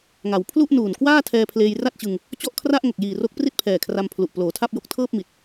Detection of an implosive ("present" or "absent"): absent